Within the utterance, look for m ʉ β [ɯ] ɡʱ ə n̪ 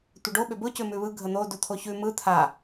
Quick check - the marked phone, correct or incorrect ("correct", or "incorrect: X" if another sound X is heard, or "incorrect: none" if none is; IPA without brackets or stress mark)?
correct